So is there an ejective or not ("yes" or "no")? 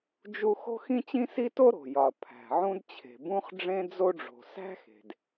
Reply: no